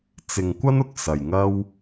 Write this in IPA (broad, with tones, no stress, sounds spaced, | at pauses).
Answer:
t͡s ɪ˨ ŋ kʷ ɐ˥ n ʊ˨˥ k̚ s ɐ˨ j ŋ ɐ˥ w